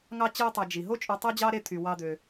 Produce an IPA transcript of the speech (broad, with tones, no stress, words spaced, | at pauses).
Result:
ŋɑ˥t͡ɕɯ˦o̯tˤæ˨d͡ʒi˩ ɦo˦t͡ʃʼu˨ tˤo˥d͡ʑɑ˥ɾe˦ t̪ʰy˩wɑ˨d̪ø˩